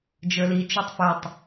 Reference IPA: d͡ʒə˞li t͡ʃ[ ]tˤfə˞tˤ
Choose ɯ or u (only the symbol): u